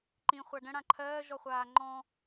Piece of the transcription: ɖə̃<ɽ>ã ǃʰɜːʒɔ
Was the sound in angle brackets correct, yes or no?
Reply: yes